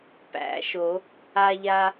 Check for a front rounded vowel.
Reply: absent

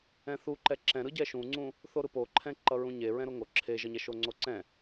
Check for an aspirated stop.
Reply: present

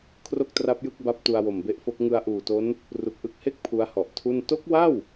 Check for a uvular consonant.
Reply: absent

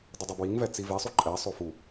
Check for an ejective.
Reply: present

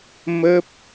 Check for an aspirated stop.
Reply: absent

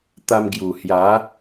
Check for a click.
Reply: absent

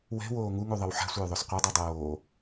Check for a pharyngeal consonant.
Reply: present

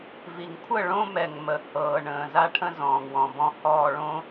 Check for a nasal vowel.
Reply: present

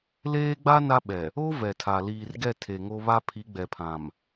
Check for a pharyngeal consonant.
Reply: absent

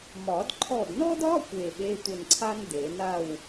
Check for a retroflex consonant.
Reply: absent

